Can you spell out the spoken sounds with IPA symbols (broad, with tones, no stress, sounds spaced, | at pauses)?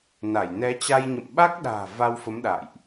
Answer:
n a˧˩ j n ɛ˨˦ t͡ɕ a˧ j ɲ ə̰˧˨ m ɓ a˦˥ k̚ ɗ a̤ː˨˩ v a˧ w f ə˨˦ m ɗ a̰ː˧˨ j ʔ